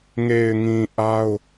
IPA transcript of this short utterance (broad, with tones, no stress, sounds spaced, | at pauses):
ŋ e˨ ɪ̯ ŋ ĩ˨ ʔ a˦ ʊ̯